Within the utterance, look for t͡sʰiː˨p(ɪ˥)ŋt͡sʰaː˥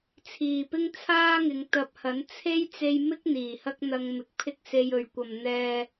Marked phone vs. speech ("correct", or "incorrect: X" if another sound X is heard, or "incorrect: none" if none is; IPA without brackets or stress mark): correct